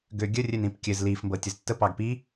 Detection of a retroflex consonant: absent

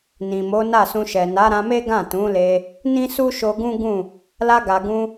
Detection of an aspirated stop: absent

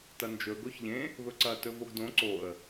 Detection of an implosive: absent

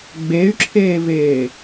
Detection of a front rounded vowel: present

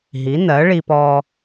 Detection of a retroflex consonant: present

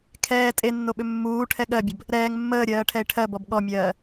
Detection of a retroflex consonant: present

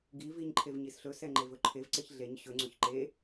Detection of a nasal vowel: absent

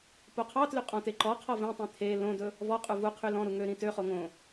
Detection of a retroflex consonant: absent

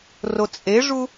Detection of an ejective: present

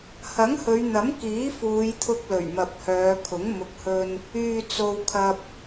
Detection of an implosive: absent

